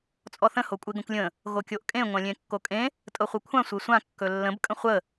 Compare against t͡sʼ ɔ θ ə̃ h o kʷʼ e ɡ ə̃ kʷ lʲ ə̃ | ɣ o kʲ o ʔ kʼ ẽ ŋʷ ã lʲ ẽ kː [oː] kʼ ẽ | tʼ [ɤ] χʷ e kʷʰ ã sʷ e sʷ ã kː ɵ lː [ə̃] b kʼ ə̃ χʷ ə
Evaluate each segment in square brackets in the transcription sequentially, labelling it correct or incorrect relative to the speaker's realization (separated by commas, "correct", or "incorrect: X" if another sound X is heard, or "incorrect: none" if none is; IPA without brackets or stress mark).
incorrect: o, correct, correct